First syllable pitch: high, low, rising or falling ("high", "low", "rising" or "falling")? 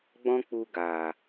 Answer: high